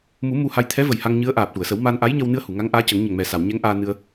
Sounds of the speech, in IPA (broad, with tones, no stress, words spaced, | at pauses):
mu˨˩˦ mu˧ha˧j t̪ʰɛ˧˥və˨˩j ha˧ŋɲɨ˧˥ə̯ʔaː˨˩p̚ ʈu˨˩˨ə̯sə˨˩˦wma˧n ʔa˧˥jɲə˧wnɨ˧ə̯ hu˨˩˨ŋa˧˥ŋʔaː˧˥cə˨˩˦ŋ ɲə˨˩ŋmɛ˨˩sa˨˩˨w ɲɛ˧˥ŋʔaː˧nɨ˧ə̯